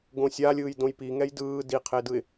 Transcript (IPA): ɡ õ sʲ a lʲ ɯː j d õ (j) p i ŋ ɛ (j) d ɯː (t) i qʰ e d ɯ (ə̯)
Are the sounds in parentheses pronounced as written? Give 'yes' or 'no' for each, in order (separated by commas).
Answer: yes, yes, no, no